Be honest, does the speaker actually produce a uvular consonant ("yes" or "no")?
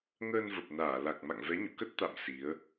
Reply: no